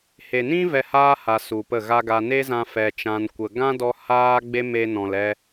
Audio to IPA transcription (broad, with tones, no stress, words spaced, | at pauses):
he˨nĩ˦ vɛ˧haː˦ ha˧su˨pə˦˨ɣa˦ ɡa˧ne˦zã˧ fɛ˧t͡ʃã˧nkʷə˨ ɡã˦dɔ˧ haː˦ ɡ͡be˧me˨ nɔ̃˨lɛ˧